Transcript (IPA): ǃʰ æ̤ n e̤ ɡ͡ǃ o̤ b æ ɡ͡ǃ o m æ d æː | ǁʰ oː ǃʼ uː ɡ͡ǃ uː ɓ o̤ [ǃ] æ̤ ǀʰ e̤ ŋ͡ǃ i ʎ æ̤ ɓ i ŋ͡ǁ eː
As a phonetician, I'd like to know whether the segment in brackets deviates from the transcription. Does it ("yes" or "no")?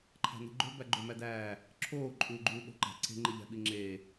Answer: no